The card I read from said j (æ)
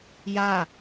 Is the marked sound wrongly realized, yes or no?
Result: yes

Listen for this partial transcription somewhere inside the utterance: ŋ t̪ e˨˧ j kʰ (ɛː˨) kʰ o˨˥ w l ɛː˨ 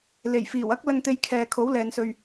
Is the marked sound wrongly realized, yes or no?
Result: no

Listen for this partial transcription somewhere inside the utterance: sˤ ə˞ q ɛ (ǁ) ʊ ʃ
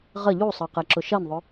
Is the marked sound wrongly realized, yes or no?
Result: no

